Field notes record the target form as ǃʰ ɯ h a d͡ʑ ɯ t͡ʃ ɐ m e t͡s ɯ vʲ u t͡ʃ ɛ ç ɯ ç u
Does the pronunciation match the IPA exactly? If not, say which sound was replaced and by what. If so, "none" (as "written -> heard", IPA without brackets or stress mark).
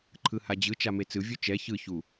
ɐ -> a